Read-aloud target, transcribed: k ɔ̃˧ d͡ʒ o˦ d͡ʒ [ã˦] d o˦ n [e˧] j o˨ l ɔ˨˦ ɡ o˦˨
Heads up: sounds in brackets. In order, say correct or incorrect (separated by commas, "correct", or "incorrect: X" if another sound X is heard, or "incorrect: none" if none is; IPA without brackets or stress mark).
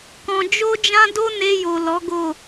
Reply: correct, correct